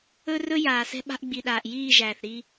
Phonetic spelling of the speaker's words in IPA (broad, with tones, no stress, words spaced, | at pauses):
ɵ˦rɵ˦ jaː˨sɛ̤˦ ɓa̤˦ʔɡ͡bi˨ɗaː˨ʔ jiː˦˨ ʒæː˨θɾi˦